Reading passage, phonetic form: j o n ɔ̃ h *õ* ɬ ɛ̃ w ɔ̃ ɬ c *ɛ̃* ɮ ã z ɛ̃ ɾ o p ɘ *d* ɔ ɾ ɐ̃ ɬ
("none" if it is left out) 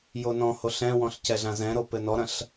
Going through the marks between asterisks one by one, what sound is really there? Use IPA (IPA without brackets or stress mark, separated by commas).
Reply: o, ɛ, n